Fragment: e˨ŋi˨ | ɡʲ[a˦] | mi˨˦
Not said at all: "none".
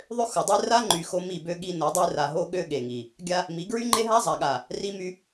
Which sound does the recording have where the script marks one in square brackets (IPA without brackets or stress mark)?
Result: a˦